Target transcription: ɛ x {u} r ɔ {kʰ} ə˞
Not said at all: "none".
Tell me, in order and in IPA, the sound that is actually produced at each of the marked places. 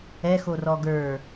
o, ɡ

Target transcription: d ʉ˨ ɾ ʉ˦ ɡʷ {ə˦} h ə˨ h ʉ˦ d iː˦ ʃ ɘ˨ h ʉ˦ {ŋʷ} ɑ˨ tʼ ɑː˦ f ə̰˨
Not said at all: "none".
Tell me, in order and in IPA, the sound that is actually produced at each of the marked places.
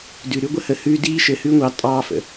ə˦, ŋʷ

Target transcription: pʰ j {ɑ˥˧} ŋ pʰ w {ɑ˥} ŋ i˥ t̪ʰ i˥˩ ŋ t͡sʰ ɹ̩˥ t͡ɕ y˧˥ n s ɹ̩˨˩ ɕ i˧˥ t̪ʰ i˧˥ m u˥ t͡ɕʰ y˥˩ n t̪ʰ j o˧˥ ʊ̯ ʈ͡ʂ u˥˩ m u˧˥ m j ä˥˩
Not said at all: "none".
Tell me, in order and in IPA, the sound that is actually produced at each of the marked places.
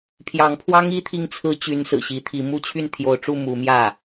ɑ˧˥, ɑ˥

